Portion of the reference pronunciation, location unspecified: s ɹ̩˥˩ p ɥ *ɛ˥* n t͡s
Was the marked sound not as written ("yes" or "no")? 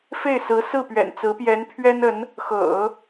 yes